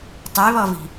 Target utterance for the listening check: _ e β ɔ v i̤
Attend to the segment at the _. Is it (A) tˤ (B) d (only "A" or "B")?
A